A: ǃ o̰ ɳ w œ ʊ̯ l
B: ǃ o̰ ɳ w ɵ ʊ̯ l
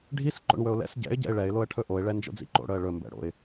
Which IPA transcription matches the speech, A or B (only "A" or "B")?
B